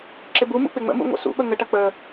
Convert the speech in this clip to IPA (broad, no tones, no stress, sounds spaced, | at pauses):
ǁ ɪ b u m ṵ k͡p ɪ ŋ͡m ə̰ m ṵ ŋʷ ə̰ s ṵ ɓ ə ŋ ə ʈ ɐ k͡p ə